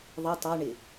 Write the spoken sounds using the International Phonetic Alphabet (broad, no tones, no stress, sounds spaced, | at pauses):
ðˤ i tˤ ɑ ɳ ɪ